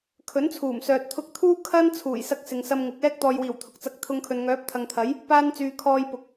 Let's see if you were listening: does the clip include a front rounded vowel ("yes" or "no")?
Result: yes